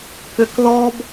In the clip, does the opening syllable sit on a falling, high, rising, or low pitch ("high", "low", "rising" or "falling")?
low